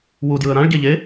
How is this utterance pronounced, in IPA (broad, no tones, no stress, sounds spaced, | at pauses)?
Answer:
w u d j ɯ ə̯ ɾ ã ɭ ɟ e ʎ e